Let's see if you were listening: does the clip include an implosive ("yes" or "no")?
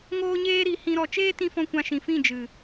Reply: no